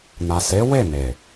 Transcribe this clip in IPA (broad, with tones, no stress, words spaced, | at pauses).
na˨se˨˦ we˦˨ne˨